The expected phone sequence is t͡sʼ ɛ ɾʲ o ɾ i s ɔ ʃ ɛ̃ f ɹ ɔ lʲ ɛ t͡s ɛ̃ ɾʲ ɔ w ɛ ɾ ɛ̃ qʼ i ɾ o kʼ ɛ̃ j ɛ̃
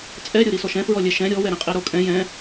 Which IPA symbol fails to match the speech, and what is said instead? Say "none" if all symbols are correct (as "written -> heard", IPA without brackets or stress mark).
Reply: t͡s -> ʃ